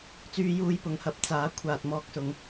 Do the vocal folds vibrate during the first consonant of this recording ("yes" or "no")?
no